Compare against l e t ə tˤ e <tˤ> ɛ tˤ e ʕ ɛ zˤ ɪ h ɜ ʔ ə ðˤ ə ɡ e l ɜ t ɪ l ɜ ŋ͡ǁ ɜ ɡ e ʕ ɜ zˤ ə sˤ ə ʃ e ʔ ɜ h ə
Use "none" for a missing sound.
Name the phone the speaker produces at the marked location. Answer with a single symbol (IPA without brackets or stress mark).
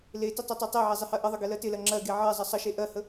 tˤ